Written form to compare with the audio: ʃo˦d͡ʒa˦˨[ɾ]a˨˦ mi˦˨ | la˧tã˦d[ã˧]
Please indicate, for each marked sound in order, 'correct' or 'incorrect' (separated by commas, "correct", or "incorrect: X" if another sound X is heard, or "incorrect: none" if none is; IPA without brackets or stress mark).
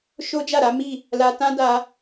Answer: correct, incorrect: a˧